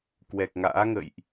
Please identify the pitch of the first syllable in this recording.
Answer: low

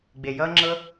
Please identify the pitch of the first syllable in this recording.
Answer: low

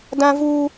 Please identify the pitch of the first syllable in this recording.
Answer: high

